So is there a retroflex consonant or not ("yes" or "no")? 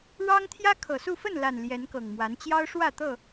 yes